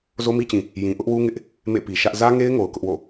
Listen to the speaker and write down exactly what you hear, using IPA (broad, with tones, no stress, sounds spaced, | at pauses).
z o˦ m i˦ t͡ɕ ĩ˨ | j ĩ˨ ʔ ʊ˦ ʔ w u˦ ŋ ɪ˦ ʔ | m ḛ˦˨ p i˨ ʃ ä˦ ʔ z ä˦ ŋ e˦ ɪ̯ ŋ o˨ ʊ̯ k ʊ˦ ʔ w o̰˦˨